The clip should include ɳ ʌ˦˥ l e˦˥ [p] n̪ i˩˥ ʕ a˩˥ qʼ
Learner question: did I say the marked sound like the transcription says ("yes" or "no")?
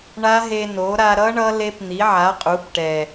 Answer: yes